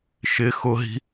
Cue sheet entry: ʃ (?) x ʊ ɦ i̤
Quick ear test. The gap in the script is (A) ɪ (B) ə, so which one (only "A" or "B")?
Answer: A